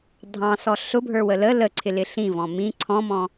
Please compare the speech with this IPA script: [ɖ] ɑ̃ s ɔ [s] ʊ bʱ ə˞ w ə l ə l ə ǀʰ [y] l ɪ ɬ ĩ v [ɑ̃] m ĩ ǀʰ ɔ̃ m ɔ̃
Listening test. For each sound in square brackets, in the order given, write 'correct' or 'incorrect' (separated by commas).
incorrect, incorrect, incorrect, incorrect